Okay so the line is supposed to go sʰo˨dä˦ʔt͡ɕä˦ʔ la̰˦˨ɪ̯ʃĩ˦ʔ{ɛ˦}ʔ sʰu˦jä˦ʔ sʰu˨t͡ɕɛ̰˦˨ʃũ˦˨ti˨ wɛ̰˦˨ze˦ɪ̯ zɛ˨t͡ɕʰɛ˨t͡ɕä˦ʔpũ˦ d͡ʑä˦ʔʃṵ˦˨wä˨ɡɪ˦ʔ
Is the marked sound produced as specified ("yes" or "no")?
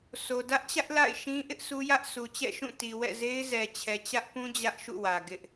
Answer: no